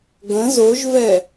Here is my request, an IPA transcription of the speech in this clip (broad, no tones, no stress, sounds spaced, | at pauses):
ɡ ə̃ z o ʒ v ɛ